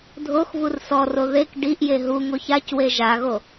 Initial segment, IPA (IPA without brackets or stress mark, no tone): dʱ